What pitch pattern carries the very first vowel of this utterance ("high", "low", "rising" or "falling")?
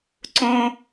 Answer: high